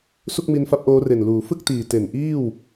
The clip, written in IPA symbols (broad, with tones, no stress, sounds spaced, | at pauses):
s u˥˩ k̚ m i˧ n f a˦˥ p̚ ʔ oː˦˥ r e˨˩ n l uː˩˦ f ɯ˥˩ k̚ t iː˨˩ t e˨˩ n ʔ iː˥˩ w